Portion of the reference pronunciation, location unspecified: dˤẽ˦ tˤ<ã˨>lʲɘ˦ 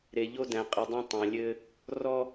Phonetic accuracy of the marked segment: correct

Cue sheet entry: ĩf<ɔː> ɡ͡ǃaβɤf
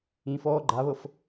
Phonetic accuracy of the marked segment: correct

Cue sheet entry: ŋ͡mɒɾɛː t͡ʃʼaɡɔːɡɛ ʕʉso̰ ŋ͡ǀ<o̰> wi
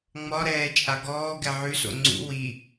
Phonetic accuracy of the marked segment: incorrect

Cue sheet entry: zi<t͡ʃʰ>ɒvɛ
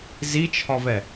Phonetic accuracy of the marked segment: correct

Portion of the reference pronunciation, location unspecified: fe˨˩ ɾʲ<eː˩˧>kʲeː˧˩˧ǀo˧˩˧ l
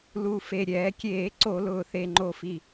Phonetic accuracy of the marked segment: incorrect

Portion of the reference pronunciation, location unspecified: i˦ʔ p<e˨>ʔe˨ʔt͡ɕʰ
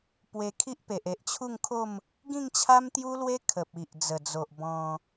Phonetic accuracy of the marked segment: correct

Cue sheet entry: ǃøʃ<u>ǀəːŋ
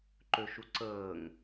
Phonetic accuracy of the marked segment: correct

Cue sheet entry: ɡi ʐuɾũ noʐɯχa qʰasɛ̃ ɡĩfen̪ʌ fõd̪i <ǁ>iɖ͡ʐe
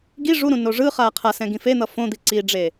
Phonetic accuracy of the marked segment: incorrect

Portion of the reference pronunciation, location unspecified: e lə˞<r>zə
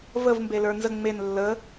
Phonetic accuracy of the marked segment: incorrect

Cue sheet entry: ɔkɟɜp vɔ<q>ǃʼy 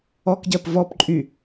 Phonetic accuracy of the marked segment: incorrect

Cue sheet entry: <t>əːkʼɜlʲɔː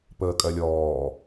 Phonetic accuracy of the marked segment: incorrect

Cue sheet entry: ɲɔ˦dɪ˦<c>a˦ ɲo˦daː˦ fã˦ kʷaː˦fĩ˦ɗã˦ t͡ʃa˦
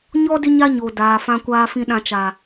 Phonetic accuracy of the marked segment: incorrect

